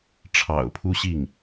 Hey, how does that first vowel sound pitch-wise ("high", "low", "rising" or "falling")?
low